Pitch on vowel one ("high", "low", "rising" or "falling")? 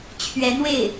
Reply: rising